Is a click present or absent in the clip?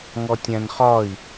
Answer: absent